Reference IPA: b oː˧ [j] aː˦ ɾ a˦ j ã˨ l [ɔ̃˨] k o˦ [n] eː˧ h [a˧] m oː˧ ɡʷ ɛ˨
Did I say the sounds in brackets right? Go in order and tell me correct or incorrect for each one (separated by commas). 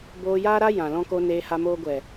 correct, incorrect, correct, correct